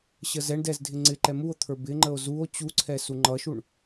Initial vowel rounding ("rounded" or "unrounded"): unrounded